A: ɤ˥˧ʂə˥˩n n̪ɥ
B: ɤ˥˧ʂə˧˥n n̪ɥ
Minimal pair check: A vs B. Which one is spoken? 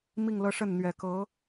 A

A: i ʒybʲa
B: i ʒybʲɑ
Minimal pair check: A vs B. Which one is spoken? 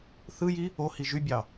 B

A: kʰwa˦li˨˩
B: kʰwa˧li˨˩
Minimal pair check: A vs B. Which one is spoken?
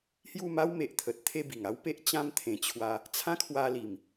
B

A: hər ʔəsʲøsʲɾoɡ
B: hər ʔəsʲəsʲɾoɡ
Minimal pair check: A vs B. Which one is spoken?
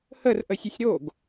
B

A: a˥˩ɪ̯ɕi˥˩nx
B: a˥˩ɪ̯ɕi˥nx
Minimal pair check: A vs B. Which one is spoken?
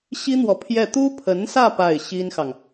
B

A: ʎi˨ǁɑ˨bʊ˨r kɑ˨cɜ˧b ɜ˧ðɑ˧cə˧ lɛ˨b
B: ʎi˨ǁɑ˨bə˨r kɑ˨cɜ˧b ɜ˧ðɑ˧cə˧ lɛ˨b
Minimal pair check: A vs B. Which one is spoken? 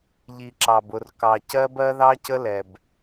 A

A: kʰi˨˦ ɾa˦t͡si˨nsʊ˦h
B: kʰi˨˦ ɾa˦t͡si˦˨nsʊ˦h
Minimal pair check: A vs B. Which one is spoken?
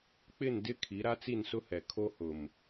B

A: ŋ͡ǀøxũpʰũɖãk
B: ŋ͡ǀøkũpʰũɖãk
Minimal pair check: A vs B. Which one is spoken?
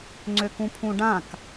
B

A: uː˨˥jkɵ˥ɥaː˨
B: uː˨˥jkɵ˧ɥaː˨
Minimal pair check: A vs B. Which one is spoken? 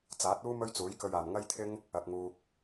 B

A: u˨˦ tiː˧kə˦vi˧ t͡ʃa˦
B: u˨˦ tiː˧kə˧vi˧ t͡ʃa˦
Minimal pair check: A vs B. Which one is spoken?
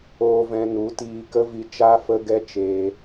A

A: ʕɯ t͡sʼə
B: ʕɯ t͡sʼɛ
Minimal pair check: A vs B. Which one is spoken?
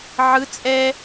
B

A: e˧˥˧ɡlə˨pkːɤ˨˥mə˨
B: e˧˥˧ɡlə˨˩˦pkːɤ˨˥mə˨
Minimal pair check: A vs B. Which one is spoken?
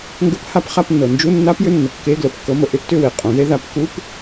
B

